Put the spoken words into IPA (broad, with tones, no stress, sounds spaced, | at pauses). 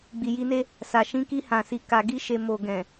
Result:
ɡ͡b i˨ j i˧ n e˦ | s a˨ ʃ ĩ˧ k i˧ h ã˨ s i˨ k a˨ ɡ i˧ ʃ e˨ m o˨ ɡ ɛ̃˨